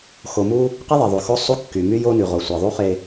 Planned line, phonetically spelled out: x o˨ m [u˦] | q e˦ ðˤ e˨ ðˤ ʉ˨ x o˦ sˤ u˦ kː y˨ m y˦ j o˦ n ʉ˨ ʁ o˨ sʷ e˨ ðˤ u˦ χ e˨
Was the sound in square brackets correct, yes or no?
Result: yes